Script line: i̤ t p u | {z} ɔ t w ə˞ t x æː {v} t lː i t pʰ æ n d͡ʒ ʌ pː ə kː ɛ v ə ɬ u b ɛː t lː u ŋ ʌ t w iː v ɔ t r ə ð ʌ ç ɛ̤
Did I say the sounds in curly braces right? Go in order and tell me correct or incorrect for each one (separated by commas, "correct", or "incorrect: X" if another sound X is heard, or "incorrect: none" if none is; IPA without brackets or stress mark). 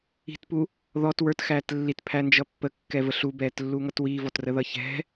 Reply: incorrect: ð, incorrect: none